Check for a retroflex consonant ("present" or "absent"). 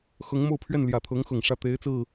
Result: present